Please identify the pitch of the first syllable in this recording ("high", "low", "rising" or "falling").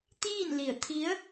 falling